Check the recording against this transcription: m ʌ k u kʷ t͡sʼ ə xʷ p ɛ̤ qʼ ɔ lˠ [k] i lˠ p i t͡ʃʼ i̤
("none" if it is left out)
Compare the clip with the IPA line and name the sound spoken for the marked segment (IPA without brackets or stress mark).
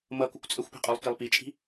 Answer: k